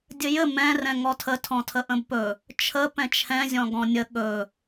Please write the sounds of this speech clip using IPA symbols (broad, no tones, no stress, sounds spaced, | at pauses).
dʲ ɘ j ɘ m ɛ̃ r ɛ̃ ŋ ɔ tʰ ə tʰ ɔ̃ tʰ ə ʔ ə̃ b p ɵ | t͡ʃʰ ə p ɛ̃ t͡ʃʰ ɛ̃ zʲ ɔ̃ ɡ ɔ̃ nʲ ə ɠ ɵ